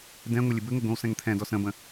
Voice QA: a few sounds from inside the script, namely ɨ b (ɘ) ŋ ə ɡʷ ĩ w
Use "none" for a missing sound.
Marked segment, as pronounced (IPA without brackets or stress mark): ɘ